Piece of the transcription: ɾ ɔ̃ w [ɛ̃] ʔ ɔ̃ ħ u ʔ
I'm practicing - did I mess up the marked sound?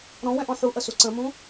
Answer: no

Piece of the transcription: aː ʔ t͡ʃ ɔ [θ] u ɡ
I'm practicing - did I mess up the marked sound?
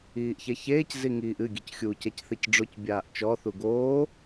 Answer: no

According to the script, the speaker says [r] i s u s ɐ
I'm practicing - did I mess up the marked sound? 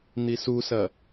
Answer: yes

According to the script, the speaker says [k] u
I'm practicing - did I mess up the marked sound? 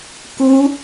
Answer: no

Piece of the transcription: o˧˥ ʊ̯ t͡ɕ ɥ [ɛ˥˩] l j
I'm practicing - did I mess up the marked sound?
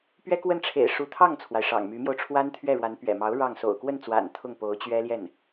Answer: yes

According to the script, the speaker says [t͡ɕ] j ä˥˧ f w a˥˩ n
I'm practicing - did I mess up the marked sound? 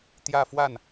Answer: yes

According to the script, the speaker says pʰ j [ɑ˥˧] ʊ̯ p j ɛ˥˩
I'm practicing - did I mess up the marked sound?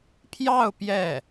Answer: no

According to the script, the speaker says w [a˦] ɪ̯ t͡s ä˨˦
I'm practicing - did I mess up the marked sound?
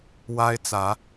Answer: no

